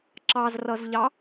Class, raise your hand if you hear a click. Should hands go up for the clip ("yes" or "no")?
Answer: yes